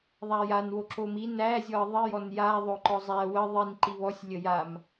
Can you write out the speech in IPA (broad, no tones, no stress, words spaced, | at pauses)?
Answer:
ðˤajanwo ǁomi næzʲɔə̯ ðˤijɔn ja ðˤoǃɔzˤæ wə ðˤin ǃiβɔsʲ lʲəjam